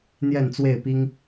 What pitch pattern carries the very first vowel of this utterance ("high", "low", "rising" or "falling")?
falling